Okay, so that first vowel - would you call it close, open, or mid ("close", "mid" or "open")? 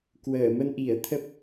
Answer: mid